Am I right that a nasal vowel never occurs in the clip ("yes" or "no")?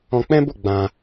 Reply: no